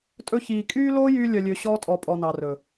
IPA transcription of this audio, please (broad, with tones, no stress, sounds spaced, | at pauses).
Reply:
tʼ ɵ˧ ç iː˨ kʼ yː˦ l oː˦ j yː˧ lʲ œ˨ lʲ ø˨ ɕ ɔː˧ tʼ ɔ˨ pʼ ɔ˨ n ɑ˨ r ɵ˨